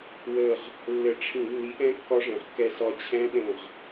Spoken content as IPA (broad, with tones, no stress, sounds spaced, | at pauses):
w ə˧˩ ʁ | lː ɘ˧˩˧ ʈ͡ʂʰ ĩ˧˩˧ nː i˨˥ ʔ ɛ̃˦˥ kː ɒ˦˥ ʐ ɛ̃˩˧ ʁ kː ɛ˧ s ɒ˧ t͡ɕʰ ɛ̃˦˥ ɗ ə̃˧˩ ʁ